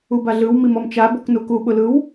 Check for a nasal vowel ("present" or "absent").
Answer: absent